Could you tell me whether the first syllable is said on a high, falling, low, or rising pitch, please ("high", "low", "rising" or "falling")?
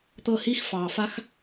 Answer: falling